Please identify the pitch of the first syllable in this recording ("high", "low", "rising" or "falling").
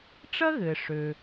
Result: high